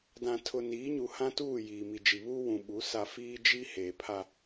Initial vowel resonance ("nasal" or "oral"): nasal